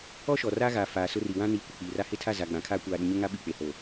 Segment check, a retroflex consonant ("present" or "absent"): absent